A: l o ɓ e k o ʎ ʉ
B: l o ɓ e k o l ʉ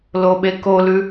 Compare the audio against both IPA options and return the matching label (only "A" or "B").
B